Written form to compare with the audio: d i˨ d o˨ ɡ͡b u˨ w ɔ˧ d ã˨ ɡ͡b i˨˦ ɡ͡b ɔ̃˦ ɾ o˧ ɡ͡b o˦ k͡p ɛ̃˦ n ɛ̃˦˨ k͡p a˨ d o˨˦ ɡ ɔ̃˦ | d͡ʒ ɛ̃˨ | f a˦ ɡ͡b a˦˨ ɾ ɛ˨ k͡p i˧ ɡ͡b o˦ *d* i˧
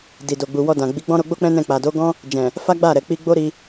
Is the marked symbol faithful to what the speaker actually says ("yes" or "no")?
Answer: no